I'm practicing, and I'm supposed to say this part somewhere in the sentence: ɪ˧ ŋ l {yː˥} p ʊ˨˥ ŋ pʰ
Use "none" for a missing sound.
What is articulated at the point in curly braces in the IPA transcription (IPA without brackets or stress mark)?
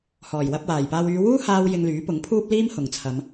yː˨˥